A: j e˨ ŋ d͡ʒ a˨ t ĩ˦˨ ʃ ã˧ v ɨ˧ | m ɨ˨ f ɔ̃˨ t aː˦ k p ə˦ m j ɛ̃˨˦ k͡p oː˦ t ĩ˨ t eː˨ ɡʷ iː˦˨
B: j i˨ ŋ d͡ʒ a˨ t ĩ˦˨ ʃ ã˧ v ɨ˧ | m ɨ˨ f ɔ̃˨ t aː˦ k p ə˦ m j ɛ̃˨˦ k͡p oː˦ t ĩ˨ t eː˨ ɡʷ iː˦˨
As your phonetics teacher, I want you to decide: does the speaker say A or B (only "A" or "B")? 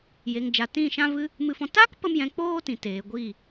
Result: A